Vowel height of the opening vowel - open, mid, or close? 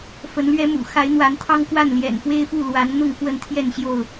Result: mid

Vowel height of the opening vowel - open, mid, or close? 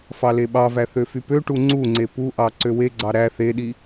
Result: open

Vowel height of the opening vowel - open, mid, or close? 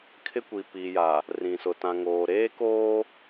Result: close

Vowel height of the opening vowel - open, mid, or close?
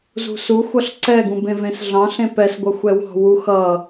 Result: close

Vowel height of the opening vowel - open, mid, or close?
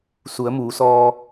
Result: close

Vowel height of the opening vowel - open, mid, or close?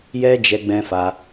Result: mid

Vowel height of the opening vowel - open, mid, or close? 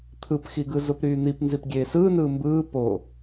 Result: close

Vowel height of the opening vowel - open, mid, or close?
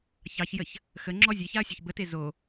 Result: open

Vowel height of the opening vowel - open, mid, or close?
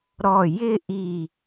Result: mid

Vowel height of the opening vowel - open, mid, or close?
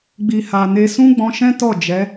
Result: close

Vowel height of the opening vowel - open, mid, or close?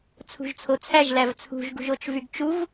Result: close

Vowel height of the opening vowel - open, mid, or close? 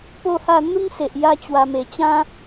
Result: mid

